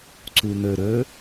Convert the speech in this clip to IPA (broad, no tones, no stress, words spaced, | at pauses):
ǀun̪ɵ ɾɵ